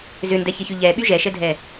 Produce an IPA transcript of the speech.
z ʏ n d ɛ ç ɪ ç y ʎ ɛ ɓ y ʒ ɛ ʃ ɛ dʱ ɛ

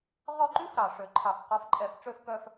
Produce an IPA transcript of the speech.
ʁ ɔ˦˨ ǃ y˦˥ f ɾ ɑ˨˩ ʂ ø˨˩˦ ǃʰ ɑ˨˩ f q ɔ˨˦ f ǃʼ ɛ˨˩˦ f ʈ͡ʂ ø˦˨ f k œ˦˨ f

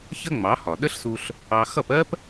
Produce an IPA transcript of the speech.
ç ə˥ ŋ͡m ɑ˩˥ h ɒ˩ ɗ ə˥ ɬ s u˧ ɬ | ɑ˧ x ʌ˥˩ p ɜ˥ p

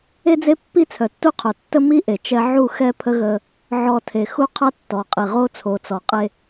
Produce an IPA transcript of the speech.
e˦ d͡z e˦ pː i˦ t͡sʰ œ˨ tː u˦ qʰ œ˨ tː ə˦ m i˦ ʔ e˨ t͡ʃ ɛ˦ ʕ u˦˨ x ɛ˦ pʰ ə˦ ɣ ə˦ | ʕ ɔ˨ tʰ e˨ x u˦ qʰ a˦ tː ɔ˨ qʼ i˨ ʁ o˦ t͡sʰ o˨ t͡s ɔ˨ qʼ e˦

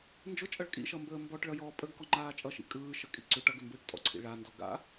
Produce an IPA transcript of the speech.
n d͡ʒ ʊ t͡ʃʼ ʌ ɭ kʼ ḭ ʃ ʌ m b əː m b ɔ ʈ ɭ ʌ j ɔː pʼ ə ɡ k ɔ ŋ͡ǃ aː t͡ʃʼ ʌ ʃ ḭ kʼ ɯː ʃ ə kʼ ḭ ǀ ʏ ʈ ʌ ɡ ʏ m b ɯː ʈ tʼ ɔ̰ ǀʰ ḭ ɭ a n d ɔ ɡ a̰

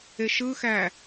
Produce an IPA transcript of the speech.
e ʃ ɯ x æ

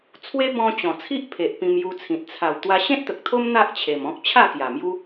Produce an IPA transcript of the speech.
t͡sʰ w e˦ b ɔ̃˧ t͡ɕ ɔ̃˨˩ t͡sʰ i˦ ʔ pʰ e˨ ʔ p ĩ˧ m j u˧ t͡sʰ ĩ˨ t̚ t͡sʰ a˨˩ w t̪ w a˧ ɕ ẽ˦ t̚ t̪ ə˨ k̚ t̪ʰ o˦ m n̪ a˦ ʔ t͡ɕʰ e˨˩ m ɔ̃˦ k̚ t͡ɕʰ a˥˧ k j a˨˩ m j u˦

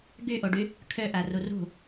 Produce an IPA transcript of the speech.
ɡ y ʔ o ɖ y | kʰ ø ʔ æ r u r ṳ

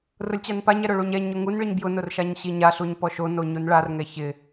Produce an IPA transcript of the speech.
r ʊ lʲ t͡ɕ a n p a ɲ ɛ ɾ ʊ ɭ u ɲ ɛ ɲ ʊ ŋ u n ɭ i ɲ b j ʊ n ʊ r ʃ a ɲ ɕ i ɲ a ɬ u ɲ p ɔ ʃ o n o ɲ u n ɭ a r ŋ ɛ ç ɪ

